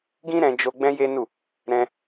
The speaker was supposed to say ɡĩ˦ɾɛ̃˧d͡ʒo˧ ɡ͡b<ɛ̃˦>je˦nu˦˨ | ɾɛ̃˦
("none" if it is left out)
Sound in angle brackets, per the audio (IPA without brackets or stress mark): ɛ̃˦